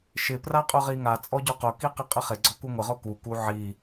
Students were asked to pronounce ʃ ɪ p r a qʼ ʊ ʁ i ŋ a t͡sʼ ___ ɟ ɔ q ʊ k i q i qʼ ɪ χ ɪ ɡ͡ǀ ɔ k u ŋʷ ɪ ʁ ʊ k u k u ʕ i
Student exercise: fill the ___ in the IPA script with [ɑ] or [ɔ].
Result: ɔ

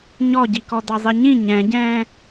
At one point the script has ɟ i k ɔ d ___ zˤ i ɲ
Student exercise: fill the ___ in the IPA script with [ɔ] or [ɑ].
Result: ɑ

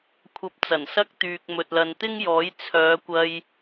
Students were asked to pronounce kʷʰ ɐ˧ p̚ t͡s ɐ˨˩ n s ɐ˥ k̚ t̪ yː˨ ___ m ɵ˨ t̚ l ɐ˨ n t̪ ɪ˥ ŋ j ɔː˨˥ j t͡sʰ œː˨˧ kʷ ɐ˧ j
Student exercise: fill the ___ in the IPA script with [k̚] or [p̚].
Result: k̚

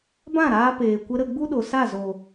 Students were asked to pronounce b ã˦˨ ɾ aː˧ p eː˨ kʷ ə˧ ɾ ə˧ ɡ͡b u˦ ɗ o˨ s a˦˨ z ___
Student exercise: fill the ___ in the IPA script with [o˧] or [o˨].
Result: o˨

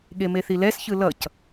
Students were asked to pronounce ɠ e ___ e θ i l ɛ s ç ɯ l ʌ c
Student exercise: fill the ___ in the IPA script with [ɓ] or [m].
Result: m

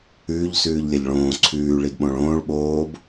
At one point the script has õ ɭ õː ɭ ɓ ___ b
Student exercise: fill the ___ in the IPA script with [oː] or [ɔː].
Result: oː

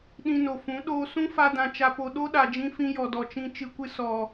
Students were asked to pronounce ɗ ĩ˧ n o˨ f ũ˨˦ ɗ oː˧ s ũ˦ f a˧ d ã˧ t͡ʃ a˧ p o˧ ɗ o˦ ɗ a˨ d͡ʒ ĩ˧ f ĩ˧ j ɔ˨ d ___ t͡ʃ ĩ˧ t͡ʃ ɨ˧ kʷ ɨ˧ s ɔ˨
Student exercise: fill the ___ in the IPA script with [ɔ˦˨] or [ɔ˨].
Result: ɔ˨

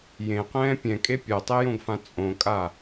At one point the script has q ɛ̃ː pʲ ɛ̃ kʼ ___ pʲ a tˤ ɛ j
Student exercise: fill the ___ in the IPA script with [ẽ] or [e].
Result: e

